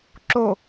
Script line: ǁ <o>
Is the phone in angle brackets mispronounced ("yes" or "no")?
no